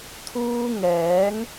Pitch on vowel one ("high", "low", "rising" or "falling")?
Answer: high